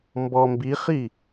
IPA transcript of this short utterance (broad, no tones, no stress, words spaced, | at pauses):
mbɔ mbiχi